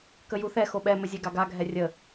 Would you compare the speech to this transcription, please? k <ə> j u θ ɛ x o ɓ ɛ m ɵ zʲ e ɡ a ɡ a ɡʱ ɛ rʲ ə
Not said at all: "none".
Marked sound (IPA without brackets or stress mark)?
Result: ə